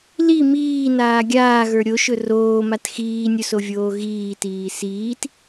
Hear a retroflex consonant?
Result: no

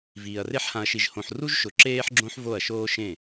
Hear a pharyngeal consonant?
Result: yes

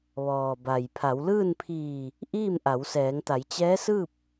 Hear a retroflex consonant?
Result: no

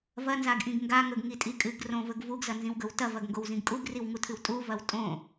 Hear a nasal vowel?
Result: yes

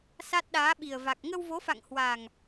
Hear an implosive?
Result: yes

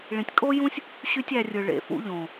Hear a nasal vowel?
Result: yes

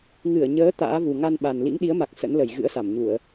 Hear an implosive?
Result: yes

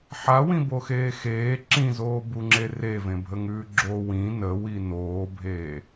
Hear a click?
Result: yes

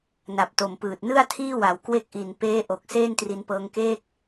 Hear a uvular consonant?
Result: no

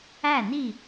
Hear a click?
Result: no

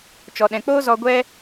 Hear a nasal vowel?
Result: yes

